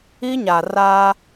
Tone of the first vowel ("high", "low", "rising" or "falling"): high